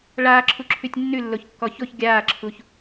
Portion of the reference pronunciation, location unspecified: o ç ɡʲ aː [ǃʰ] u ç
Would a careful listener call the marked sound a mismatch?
yes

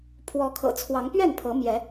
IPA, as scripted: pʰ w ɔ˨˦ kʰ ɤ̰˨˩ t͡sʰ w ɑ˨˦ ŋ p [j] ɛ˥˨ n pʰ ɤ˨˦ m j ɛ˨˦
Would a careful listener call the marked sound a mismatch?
yes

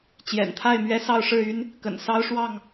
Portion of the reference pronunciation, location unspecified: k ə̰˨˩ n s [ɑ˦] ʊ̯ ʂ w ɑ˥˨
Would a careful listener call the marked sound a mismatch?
no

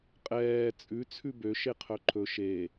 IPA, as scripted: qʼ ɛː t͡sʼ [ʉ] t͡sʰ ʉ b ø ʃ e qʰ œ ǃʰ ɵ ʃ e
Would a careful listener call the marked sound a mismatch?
no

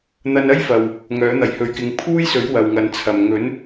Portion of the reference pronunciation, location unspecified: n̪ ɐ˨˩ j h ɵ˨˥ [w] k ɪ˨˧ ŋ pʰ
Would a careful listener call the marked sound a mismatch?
yes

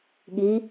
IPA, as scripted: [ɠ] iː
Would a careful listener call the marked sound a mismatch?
no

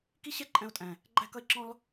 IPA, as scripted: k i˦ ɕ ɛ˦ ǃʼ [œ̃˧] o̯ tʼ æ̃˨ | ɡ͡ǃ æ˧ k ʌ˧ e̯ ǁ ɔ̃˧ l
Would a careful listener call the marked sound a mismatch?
yes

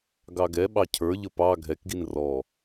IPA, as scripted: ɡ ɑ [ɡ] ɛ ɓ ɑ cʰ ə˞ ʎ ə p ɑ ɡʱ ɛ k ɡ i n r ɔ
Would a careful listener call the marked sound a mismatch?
no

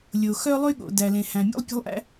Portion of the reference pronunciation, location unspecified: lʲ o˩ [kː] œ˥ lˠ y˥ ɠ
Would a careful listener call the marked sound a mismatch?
yes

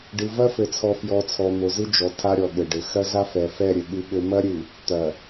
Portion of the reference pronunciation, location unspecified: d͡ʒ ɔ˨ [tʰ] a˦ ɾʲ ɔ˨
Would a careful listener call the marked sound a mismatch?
no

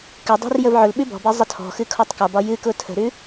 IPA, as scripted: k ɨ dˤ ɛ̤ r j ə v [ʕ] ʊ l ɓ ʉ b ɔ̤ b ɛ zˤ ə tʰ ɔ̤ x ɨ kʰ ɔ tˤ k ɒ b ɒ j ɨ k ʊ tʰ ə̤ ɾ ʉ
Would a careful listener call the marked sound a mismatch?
no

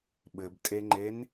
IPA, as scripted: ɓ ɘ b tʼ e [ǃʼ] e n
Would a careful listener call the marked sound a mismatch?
yes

